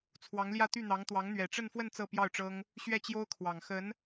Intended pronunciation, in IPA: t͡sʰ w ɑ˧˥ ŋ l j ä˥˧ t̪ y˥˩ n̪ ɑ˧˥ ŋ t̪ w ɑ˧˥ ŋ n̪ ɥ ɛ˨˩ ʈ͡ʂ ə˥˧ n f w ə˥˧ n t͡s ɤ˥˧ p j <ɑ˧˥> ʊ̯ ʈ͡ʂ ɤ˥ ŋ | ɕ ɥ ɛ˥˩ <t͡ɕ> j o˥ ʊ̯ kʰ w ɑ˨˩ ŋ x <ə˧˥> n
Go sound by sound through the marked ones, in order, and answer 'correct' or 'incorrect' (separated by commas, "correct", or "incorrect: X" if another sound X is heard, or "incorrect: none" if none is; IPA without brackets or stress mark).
incorrect: ɑ˥˩, correct, correct